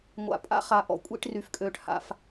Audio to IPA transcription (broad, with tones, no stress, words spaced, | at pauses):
ŋʷa̰˨pʼa̰˦ χa˨ʔɔ̰˨ kʷʼḭ˨˦ʈry˨fkʼøː˨ʈ ha̰˦f